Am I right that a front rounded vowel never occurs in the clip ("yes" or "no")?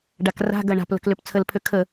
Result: no